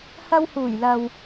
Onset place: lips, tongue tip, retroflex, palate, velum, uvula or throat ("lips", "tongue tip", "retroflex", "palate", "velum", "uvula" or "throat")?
throat